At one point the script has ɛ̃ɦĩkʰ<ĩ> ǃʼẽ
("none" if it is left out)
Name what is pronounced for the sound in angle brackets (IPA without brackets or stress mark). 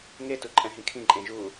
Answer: ĩ